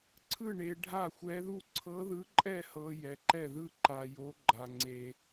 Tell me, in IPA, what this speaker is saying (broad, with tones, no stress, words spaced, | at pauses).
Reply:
ǀʰɯ˥˨ɳe˧ ɖʱa˥˨xʷɛ˧˥ðu˥˨ ǀʰɤ˧˥ðɯ˧˥ǃʼɛ˥˨hɤ˧ jɛ˧ǃɛ˥˨ðɯ˥˨ ǃa˧jo˧˥ɡ͡ǃa˧ ŋ͡ǀe˧